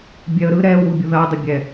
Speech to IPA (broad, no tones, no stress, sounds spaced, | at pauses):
bʲ ɛ ə̯ ɾ ɯ ɾ ɛ w u bʲ u ð ɐ dˤ ɐ bʲ ɛ